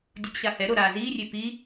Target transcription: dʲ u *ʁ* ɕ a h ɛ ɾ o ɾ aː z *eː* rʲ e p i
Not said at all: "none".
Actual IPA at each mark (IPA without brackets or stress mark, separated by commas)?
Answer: ɡ, iː